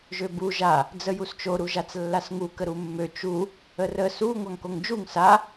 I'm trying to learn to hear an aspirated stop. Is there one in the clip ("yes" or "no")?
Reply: no